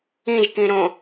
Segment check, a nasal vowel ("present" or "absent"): present